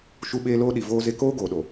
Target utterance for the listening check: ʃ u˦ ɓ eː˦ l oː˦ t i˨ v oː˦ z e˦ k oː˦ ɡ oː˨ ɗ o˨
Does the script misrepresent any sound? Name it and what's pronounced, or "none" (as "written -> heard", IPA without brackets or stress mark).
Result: t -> ɗ